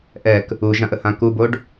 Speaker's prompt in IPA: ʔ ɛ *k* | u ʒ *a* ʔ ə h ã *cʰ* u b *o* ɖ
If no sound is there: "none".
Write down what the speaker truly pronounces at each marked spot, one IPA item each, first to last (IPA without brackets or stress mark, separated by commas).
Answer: k, ã, k, o